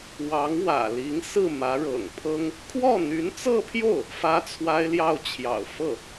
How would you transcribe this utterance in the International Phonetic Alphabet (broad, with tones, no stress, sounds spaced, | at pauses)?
w ɑ˧˥ ŋ w ä̰˨˩ l i˧˥ ŋ s ɹ̩˥˩ m ä˧˥ ɻ ɤ̰˨˩ ŋ pʰ ɤ˥ ŋ | kʰ w ɔ˥˩ n̪ y˧˥ n t͡s ɤ˥˧ pʰ j o˥˩ ʊ̯ | f ä˥ t͡sʰ w a˥ ɪ̯ l j ɑ˥˩ ʊ̯ t͡ɕʰ j ɑ̰˨˩ ʊ̯ f ɤ˥˩